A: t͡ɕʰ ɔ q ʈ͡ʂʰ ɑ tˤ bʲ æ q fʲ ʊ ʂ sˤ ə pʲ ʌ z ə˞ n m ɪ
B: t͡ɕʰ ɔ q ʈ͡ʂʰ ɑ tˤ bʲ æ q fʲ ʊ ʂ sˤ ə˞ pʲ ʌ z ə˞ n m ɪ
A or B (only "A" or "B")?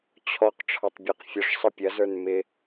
A